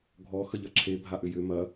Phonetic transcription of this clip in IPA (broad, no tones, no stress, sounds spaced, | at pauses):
ɡʱ ɔ x ə ʎ ɐ ǁʰ e bʱ a ʔ ʏ j ʏ m ɐ